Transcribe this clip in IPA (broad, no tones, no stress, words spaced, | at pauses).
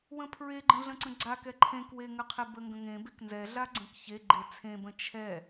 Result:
wə̃pʰɹeɡ͡ǃə̃ ɮə̃ǀə̃ɡ͡ǀakɛ ǃʰẽkweŋəqʰe bəŋɡə̃ŋẽbek nzɛɮa ɡ͡ǀə̃kçe ɡ͡ǃet͡sʰẽbə̃ t͡ʃʰɛ